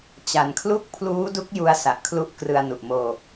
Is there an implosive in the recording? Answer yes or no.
no